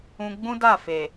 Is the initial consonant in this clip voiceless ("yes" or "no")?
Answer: no